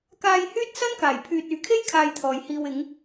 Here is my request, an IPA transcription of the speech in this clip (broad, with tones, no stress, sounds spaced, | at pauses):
k aː˧ j h yː˥ t̚ s ɐ˥ n k aː˨˩ j pʰ yː˨ t̚ yː˨˧ kʰ e˥ j kʰ aː˧ j t̪ʰ ɔː˨ j h iː˧ w ɪ˨˧ ŋ